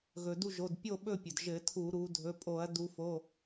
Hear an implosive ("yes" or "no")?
yes